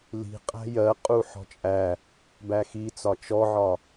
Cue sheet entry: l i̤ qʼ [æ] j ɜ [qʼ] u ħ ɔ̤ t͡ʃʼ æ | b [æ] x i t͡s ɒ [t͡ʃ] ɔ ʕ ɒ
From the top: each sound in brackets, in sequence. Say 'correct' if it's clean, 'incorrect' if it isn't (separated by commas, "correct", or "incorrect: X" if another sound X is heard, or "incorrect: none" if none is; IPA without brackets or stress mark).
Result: incorrect: æ̤, correct, correct, correct